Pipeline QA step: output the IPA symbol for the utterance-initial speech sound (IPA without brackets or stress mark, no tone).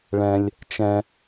ɭ